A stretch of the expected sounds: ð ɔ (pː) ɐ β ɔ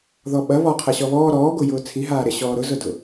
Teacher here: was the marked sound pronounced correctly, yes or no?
no